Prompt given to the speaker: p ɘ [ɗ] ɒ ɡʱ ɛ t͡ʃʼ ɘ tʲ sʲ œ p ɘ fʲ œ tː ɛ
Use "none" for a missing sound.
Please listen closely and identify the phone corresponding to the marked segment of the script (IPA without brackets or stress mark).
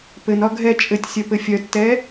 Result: n